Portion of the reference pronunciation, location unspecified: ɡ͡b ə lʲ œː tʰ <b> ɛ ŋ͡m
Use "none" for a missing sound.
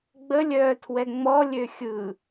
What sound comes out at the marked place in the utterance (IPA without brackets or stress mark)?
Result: w